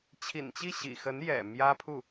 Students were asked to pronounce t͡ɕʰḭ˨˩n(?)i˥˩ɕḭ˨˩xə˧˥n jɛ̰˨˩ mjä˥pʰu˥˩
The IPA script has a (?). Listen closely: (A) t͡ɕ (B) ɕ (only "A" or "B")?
A